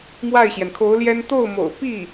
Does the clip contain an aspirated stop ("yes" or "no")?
yes